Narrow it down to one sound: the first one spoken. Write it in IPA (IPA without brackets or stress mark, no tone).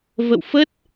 v